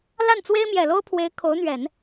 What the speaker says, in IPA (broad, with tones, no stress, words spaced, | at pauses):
la˥˩nt͡swe˥ɪ̯ mjɛ˨˩lo˥ʊ̯pʰwe˧˥ɪ̯ kʰo˧˥ʊ̯n̪ɥɛ˨˩˦n